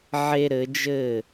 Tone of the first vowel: high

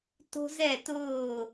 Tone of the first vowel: high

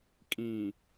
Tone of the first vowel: low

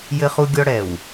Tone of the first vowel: high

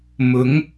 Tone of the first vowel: rising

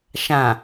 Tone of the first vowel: low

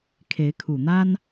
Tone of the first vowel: rising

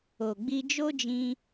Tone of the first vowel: low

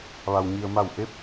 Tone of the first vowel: low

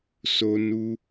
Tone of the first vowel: high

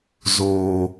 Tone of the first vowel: low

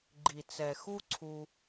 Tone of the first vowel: low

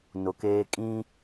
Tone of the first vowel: low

